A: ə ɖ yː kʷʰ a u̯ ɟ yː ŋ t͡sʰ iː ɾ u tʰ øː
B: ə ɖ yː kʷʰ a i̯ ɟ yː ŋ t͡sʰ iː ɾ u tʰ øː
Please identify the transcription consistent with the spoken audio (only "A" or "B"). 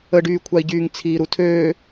B